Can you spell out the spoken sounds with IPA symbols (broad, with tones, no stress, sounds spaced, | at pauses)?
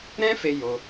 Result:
ɾ ɛ̃˦ f e˧ j o˧